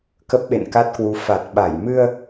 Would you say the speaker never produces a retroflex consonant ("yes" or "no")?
yes